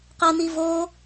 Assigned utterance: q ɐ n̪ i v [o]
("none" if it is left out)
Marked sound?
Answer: o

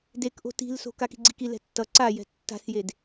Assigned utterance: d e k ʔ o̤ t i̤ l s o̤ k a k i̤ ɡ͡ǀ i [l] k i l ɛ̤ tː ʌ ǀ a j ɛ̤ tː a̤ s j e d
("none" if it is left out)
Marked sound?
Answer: none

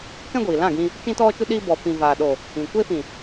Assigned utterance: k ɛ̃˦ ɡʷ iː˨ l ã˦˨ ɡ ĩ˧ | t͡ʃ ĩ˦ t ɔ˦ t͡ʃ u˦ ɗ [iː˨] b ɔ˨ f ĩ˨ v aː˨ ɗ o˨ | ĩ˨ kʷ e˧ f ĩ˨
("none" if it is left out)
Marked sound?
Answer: iː˦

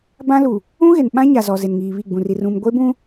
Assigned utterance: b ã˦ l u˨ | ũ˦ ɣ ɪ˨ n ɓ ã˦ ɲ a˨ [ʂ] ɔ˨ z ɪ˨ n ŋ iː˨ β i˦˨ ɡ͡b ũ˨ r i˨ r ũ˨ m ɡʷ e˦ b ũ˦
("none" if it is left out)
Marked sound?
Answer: z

